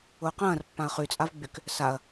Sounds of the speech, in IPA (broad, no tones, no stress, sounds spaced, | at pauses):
ʊː q ɐ̃ː r pː ã ɐ̯ χ y t͡sʼ a v ɡ͡b y k | s a ɐ̯